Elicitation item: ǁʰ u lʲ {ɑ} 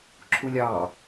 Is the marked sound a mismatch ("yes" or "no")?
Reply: no